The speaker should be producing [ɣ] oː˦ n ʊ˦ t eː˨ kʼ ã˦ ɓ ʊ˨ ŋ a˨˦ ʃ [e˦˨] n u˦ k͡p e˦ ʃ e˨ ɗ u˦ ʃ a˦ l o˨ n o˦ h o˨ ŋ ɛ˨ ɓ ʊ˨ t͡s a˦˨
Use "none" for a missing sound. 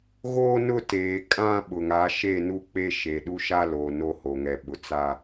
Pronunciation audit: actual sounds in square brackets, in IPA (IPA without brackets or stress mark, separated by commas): ɣ, e˦˨